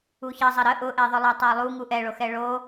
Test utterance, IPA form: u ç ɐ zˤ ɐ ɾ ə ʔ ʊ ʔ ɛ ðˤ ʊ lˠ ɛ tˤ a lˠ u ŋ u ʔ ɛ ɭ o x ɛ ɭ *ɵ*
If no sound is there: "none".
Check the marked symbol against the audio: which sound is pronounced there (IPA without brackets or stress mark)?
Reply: o